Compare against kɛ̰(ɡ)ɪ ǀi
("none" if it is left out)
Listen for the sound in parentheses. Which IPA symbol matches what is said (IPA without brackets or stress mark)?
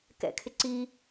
kʰ